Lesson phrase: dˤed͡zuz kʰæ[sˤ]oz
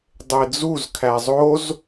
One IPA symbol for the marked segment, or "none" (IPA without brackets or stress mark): zˤ